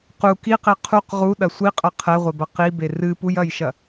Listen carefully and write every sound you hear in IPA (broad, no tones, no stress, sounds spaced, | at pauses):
q u k i q e qʰ u q ʁ u ɗ ɐ sʷ i qʼ ɐ qʰ ɛ ʁʷ e b ɐ q i b e r ɨ p u j ɐ j ʃ ɐ